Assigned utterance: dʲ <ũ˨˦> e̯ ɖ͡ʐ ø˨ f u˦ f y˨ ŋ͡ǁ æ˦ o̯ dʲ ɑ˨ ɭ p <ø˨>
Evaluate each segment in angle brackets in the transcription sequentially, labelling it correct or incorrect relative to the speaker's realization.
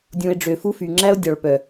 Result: incorrect, incorrect

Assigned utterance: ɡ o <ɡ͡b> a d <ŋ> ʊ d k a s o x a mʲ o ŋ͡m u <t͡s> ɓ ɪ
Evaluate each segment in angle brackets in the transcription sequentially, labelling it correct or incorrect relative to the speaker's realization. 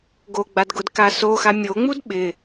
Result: correct, incorrect, incorrect

